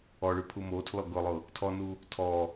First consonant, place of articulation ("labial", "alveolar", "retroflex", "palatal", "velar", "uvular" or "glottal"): retroflex